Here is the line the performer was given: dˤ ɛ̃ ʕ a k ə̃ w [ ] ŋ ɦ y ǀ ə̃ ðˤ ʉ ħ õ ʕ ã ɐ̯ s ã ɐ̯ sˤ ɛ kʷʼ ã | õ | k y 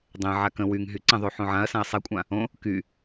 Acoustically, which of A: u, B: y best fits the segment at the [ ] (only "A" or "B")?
B